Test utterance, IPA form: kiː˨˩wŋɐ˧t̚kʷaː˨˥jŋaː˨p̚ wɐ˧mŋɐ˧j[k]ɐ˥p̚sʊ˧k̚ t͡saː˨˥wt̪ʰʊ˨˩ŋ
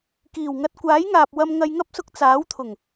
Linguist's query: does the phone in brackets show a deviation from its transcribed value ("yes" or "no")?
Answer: yes